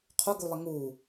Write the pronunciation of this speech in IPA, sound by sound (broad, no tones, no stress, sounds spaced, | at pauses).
qʰ u ɡ u lˠ e ŋ u